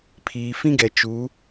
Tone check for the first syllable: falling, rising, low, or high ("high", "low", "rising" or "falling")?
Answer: low